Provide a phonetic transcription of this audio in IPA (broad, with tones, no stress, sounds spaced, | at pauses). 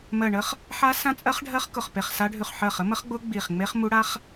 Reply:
m ɜ˧˩ ɳ ə˦˥ χ | ħ a˦˥ s ã˦˥ t͡sʼ ɜ˦˥ χ ɖʱ ɜ˦˥ χ k ʊ˧˩ χ p e˧˩ χ s a˦˥ ɖʱ ʉ˧˩ χ ħ ɜ˧˩ χ ə˦˥ m ə˦˥ χ ɡ͡b ʊ˦˥ ɡ͡b i˧˩ χ ŋ͡m e˦˥ χ m u˦˥ ɽ a˦˥ χ